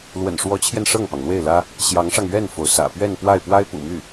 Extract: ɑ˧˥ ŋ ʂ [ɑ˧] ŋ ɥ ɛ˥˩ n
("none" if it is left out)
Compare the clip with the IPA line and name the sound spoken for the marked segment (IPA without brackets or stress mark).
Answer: ɑ˧